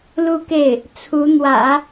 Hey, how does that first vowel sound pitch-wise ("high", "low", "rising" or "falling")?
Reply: falling